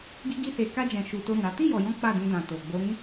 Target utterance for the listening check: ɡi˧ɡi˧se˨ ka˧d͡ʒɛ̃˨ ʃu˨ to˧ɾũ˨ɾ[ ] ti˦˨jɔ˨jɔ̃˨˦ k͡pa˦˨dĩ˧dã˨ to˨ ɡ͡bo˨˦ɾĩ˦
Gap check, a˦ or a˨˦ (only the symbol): a˨˦